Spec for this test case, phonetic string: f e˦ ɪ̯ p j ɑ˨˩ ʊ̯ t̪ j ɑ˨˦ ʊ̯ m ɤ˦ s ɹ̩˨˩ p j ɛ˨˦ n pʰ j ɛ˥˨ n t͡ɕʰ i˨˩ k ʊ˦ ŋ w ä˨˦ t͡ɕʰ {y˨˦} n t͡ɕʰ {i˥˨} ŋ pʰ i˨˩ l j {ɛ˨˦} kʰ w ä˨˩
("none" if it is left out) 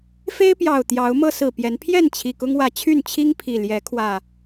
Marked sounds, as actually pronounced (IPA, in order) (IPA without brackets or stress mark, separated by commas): y˥˨, i˦, ɛ˨˦